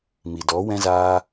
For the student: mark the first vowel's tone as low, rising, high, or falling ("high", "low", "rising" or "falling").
low